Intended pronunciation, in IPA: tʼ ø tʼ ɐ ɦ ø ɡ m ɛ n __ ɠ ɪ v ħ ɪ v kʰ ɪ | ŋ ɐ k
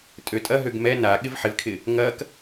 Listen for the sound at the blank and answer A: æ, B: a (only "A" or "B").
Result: B